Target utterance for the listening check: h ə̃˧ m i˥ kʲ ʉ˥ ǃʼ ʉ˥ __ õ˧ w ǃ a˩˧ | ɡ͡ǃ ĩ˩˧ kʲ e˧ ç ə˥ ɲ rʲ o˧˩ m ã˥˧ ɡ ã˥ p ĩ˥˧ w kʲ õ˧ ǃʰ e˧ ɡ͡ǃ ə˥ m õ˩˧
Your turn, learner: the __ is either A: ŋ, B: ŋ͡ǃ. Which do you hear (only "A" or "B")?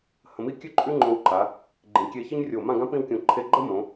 B